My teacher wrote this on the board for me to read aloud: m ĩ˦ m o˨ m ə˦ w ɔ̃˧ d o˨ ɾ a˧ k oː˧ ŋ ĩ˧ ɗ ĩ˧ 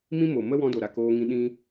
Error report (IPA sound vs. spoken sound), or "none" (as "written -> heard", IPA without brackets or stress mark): none